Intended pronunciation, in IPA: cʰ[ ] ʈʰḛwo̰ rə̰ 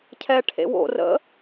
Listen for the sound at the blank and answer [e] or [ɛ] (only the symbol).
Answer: ɛ